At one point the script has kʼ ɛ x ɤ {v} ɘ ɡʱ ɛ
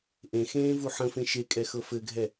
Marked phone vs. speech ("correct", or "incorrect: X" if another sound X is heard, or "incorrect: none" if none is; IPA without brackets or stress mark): incorrect: f